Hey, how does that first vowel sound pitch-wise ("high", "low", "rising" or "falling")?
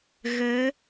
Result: rising